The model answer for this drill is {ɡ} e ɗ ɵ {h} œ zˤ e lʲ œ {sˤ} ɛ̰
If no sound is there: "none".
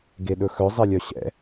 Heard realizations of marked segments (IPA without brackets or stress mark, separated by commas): ɡ, x, ɕ